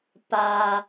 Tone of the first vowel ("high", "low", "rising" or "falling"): low